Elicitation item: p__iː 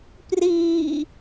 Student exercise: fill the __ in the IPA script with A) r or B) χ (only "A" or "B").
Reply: A